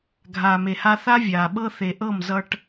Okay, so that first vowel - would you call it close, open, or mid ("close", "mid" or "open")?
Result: open